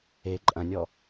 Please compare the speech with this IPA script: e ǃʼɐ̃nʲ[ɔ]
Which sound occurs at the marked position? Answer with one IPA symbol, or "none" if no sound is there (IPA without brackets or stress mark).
ɔ